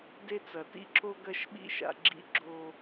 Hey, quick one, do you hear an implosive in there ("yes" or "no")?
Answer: yes